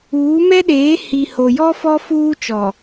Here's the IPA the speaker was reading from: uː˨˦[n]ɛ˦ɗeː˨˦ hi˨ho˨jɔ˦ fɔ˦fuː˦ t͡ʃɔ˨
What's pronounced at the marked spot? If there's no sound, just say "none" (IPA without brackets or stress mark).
m